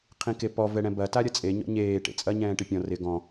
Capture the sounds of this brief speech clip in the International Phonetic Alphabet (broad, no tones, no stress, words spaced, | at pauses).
qʰĩkepɔ vɛɽɛ̃bɐ taɾʲɐt͡sʼe ɲɔ̰ɲeː ʈḛt͡sʼɐ ɲɛ̃ːʈɪpʲɔ̃ rɪ ɡɔ̃